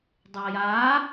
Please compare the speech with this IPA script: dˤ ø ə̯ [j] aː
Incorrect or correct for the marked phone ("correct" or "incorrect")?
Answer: correct